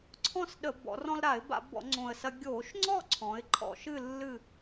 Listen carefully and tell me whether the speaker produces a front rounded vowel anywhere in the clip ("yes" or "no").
no